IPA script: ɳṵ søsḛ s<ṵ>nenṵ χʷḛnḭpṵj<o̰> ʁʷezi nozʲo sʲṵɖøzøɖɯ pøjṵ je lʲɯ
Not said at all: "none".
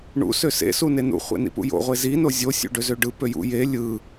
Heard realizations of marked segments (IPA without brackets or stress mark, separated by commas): u, o̰